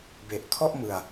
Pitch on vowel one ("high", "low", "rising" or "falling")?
low